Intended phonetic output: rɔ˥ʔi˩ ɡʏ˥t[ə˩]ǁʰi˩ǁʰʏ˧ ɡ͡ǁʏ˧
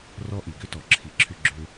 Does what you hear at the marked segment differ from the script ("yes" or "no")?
yes